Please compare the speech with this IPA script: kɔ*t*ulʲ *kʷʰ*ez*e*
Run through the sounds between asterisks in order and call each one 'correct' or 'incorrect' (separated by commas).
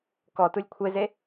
correct, correct, correct